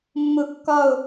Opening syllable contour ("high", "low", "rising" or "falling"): falling